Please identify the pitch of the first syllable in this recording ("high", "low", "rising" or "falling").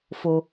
low